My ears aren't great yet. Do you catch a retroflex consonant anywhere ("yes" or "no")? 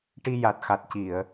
yes